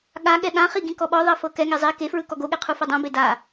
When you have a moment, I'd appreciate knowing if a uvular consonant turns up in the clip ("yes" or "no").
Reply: yes